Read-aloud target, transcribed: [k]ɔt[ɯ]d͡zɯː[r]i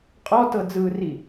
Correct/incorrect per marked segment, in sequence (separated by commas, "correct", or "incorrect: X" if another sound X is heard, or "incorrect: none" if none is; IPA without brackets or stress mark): incorrect: qʼ, incorrect: ɤ, correct